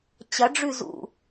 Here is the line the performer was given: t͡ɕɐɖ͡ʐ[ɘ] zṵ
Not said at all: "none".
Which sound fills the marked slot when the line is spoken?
ʉ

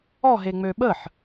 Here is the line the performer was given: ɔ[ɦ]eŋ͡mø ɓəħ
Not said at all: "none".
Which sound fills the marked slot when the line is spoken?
ɦ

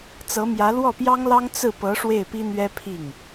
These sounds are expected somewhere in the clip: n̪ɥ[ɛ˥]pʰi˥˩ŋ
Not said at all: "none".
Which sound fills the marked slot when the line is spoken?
ɛ˥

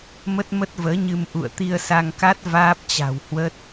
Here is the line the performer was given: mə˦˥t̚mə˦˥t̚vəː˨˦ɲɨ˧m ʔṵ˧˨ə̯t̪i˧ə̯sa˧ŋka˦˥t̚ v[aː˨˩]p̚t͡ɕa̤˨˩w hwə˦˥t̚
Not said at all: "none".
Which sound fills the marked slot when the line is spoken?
aː˦˥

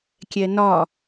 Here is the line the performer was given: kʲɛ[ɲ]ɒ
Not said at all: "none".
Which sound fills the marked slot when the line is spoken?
n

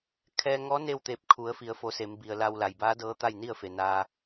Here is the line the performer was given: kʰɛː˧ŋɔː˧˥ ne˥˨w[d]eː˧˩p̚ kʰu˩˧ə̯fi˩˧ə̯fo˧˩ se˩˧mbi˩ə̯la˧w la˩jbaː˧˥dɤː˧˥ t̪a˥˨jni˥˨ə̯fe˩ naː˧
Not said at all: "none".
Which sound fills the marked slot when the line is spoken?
t̪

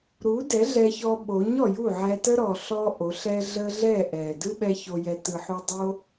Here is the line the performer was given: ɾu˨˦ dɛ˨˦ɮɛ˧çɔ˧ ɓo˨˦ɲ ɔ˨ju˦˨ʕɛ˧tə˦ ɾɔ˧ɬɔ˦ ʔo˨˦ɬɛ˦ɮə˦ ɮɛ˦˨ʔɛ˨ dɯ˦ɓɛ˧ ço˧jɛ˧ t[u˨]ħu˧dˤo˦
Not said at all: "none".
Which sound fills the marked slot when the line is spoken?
ɯ˨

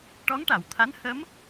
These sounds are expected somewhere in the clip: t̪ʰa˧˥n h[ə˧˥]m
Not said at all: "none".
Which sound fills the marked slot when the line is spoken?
ə˧˥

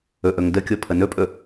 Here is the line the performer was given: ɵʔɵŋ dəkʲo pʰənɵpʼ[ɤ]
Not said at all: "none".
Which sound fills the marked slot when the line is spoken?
ɵ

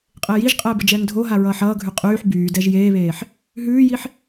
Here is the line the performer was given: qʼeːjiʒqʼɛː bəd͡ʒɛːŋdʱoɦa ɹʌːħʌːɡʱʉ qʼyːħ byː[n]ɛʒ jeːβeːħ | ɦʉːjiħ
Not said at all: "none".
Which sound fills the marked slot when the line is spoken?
d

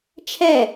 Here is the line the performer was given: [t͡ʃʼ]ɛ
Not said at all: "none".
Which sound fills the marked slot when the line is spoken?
t͡ʃʰ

